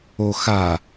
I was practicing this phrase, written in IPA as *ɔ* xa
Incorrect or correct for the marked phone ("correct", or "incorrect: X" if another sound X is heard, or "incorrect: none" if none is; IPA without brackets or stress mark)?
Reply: incorrect: o